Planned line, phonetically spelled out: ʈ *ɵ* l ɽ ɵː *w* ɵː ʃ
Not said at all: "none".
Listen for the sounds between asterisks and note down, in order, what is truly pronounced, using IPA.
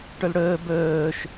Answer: ɵ, b

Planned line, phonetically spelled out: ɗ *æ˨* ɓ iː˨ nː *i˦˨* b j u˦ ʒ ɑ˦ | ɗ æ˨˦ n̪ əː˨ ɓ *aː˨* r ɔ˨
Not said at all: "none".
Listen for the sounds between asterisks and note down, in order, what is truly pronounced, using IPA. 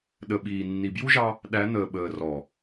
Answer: ə˨, i˨, əː˨

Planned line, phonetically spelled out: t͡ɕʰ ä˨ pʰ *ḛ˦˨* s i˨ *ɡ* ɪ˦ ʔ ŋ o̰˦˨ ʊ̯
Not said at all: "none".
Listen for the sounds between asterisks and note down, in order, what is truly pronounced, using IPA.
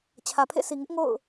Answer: ḛ˦˨, ŋ

